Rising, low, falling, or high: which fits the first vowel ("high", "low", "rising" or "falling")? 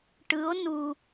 rising